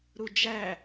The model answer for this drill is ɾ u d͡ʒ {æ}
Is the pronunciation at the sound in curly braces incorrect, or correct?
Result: correct